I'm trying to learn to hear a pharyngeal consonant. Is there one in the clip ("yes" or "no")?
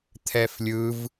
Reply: no